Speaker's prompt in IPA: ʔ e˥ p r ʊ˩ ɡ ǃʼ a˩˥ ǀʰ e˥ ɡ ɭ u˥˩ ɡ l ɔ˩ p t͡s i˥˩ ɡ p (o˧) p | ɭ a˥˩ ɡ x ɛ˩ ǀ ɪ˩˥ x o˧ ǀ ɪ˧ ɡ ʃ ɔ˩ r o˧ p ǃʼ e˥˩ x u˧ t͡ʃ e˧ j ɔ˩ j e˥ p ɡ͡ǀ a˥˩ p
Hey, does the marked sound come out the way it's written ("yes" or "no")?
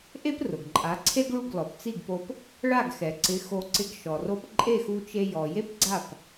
yes